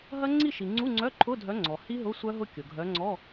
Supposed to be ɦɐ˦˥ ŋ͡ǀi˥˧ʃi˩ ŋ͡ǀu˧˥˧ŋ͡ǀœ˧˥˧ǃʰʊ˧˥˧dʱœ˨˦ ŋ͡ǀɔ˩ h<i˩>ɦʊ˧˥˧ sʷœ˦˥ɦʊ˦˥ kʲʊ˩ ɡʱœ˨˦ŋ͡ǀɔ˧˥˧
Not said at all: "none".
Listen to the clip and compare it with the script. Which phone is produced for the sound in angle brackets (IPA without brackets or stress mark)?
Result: i˦˥